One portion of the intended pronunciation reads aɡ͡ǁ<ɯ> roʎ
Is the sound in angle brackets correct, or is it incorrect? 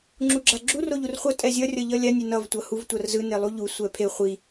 incorrect: u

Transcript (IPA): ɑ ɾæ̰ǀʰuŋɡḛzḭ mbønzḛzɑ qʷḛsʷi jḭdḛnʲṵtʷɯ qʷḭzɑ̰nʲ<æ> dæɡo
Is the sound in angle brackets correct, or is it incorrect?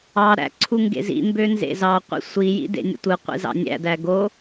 incorrect: æ̰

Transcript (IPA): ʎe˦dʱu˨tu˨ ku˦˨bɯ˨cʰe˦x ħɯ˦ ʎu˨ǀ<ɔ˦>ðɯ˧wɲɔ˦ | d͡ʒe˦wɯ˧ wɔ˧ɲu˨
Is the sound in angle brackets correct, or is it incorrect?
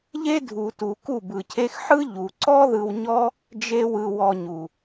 correct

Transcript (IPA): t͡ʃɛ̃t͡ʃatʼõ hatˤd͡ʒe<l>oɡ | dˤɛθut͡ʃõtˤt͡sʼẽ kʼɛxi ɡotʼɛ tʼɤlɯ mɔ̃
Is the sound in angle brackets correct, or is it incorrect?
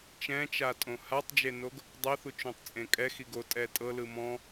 incorrect: n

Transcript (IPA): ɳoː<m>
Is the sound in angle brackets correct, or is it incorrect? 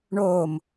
correct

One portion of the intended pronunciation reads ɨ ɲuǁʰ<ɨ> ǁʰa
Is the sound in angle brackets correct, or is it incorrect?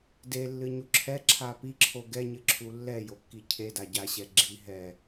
incorrect: ɛ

